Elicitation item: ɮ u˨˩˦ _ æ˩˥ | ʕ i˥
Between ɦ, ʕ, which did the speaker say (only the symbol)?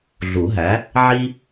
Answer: ɦ